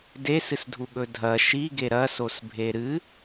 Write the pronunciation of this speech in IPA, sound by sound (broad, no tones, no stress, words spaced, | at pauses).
desɨsdʱuɠɵ dʱɐ ʃiɡe ɾɐsosbʱe ɾɨ